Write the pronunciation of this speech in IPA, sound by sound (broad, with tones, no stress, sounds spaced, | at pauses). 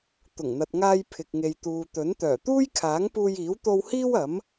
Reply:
t̪ ʊ˨˩ ŋ n̪ ɐ˨ t̚ ŋ aː˧ j pʰ ɪ˨ k̚ ŋ e˨ j t̪ uː˨ t̪ ɵ˨˥ n t̪ œː˨˩ t̪ uː˥ j kʰ aː˨˥ ŋ p uː˧ j iː˨˥ w t̪ o˧ w h iː˥ w ɐ˨˥ m